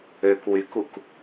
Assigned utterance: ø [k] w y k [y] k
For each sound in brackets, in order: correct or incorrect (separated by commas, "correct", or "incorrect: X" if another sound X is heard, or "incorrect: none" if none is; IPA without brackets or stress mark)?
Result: correct, incorrect: u